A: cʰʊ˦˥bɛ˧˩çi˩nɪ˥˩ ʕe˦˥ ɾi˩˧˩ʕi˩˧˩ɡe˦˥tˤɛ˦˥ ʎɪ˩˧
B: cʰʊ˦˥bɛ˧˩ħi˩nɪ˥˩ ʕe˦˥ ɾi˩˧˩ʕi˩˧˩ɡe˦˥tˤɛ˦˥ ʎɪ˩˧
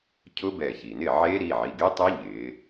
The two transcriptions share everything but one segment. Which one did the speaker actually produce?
A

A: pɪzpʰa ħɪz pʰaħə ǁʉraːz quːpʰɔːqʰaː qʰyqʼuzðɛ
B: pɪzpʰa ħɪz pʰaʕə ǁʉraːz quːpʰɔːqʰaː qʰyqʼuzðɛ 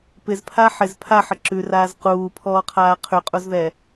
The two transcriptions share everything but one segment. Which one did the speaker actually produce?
A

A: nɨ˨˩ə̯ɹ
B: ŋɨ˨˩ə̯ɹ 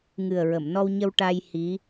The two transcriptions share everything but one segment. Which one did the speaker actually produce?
B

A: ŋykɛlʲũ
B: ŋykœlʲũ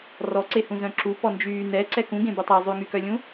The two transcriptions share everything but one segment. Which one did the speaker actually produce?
B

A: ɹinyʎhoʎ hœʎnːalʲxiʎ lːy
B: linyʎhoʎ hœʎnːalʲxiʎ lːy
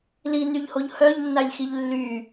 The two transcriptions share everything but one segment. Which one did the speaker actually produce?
B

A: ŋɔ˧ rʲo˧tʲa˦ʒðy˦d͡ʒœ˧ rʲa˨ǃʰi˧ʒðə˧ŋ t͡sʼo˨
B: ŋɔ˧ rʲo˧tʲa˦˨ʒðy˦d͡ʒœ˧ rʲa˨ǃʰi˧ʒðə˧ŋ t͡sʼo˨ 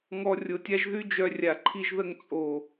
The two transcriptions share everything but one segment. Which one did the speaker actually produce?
A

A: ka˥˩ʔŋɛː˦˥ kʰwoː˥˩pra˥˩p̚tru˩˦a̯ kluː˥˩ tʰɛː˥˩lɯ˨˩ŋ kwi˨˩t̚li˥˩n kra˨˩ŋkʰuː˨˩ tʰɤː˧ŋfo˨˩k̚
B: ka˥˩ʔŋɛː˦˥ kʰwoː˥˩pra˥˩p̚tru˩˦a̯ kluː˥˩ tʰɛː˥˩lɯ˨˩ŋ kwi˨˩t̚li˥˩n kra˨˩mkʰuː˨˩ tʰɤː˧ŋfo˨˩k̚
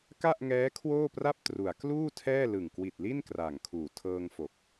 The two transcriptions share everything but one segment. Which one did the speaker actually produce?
A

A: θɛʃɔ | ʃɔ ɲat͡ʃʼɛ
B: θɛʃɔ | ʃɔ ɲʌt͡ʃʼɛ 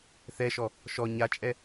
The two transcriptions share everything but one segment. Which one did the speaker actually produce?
A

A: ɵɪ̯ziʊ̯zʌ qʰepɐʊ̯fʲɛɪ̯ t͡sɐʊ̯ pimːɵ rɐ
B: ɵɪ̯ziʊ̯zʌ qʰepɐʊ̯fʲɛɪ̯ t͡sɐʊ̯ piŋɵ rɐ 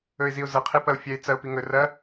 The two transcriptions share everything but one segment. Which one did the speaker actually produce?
B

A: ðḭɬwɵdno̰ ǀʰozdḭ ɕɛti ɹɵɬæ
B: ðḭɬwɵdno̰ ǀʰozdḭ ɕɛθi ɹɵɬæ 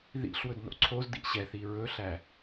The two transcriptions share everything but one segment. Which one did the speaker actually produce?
B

